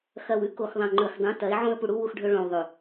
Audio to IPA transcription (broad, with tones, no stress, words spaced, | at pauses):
xɐ˨wʉ˦ ko˨xðˤɐ̃˨ŋ͡ǃɵ˨xdˤũ˨˦ tɐ˨˦ɪ̯ʕõ˦ə̯ pu˨ɽu˦ wu˦xɖʱɵ˦ ɭõ˨w ðˤʉ˨